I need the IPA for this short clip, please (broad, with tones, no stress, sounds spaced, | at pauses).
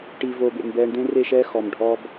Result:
ʈ i˨ v oː˨ b ḛ˨ m b ɛː˨ ɳ d̪ ẽ˦ r e˦˨ ʃ ɛː˦ x ɔ˨ m ɖʱ ɔ˦ b